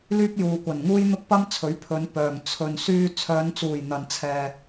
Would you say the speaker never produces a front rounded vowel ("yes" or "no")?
no